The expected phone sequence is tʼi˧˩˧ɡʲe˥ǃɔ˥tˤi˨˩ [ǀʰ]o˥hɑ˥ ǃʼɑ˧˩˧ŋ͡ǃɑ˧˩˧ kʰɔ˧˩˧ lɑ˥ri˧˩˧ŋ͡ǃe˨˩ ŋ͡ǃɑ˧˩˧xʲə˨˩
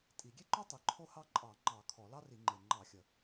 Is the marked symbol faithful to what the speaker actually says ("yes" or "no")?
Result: no